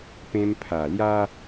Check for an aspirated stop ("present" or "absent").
present